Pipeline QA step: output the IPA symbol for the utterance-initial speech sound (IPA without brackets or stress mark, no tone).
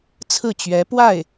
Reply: t͡sʰ